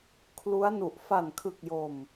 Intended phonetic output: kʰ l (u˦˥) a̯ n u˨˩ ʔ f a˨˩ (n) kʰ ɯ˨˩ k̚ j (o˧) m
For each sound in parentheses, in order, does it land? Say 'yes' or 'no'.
yes, yes, no

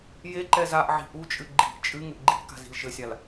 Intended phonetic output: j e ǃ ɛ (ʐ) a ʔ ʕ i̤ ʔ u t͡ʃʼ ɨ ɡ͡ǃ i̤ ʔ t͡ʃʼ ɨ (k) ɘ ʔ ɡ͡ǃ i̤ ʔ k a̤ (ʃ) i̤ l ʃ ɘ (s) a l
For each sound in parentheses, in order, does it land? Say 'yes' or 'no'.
no, no, no, no

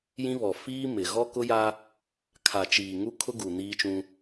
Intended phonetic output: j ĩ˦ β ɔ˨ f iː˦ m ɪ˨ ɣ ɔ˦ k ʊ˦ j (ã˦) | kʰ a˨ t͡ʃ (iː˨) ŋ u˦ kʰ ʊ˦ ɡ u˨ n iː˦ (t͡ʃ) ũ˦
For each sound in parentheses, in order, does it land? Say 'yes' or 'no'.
no, yes, yes

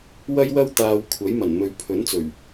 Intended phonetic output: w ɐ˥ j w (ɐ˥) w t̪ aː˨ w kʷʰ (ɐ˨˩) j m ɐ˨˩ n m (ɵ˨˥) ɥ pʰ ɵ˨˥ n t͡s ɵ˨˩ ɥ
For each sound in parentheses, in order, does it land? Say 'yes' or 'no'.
yes, no, no

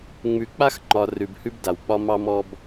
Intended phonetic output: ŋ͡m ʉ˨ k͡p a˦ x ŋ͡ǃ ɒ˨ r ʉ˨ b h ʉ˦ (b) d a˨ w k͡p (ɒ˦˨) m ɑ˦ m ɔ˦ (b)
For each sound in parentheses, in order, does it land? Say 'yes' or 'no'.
yes, no, yes

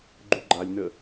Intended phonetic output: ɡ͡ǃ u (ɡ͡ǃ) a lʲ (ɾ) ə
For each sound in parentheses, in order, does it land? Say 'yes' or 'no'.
yes, no

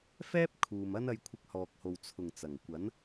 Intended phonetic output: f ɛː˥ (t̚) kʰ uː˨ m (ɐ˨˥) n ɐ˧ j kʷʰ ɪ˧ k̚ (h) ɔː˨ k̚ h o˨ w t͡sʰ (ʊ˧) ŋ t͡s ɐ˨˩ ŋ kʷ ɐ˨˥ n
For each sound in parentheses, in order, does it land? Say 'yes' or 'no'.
no, no, yes, no

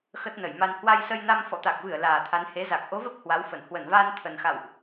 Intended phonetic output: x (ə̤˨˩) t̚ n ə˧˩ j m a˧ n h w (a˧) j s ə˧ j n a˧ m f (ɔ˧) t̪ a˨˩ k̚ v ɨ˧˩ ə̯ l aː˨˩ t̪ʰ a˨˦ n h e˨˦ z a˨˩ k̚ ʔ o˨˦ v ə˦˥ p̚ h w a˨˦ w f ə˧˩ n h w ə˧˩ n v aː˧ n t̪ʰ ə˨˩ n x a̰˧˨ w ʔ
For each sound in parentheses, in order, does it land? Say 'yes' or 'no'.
no, yes, no

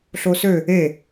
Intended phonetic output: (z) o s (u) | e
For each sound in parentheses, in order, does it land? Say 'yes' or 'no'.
no, no

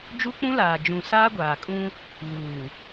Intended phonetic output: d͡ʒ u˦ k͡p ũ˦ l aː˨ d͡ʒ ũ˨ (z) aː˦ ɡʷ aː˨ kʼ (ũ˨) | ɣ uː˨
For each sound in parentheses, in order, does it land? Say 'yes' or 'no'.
no, no

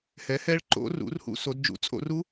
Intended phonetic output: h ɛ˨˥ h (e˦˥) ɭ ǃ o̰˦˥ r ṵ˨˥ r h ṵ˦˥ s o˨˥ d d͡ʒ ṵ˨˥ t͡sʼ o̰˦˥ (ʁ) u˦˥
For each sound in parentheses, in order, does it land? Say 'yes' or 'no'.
no, no

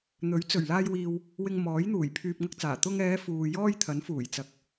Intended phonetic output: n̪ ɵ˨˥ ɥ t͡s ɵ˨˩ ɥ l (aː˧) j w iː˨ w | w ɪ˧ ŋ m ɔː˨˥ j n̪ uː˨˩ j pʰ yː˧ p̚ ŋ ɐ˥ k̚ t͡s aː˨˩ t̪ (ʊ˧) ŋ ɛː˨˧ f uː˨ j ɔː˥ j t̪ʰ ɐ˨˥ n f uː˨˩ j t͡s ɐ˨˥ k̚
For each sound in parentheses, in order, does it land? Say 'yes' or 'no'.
yes, yes

